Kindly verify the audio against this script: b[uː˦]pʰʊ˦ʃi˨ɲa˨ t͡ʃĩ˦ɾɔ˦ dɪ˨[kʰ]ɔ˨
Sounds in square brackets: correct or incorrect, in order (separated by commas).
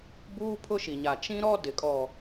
correct, incorrect